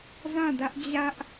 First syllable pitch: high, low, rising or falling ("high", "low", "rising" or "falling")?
falling